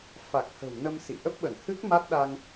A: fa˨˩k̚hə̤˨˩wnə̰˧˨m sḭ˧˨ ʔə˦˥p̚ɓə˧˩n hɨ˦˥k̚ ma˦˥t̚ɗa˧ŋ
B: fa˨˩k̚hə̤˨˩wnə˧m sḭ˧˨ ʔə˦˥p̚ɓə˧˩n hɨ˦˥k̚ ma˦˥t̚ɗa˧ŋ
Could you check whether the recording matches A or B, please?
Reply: B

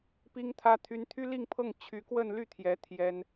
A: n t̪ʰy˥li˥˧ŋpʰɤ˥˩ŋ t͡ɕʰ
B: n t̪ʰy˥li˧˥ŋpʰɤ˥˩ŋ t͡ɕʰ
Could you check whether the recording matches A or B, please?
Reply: A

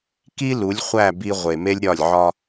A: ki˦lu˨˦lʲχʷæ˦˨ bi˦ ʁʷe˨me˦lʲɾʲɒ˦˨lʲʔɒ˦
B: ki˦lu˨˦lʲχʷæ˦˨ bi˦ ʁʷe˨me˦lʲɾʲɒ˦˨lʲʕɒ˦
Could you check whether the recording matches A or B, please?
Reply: B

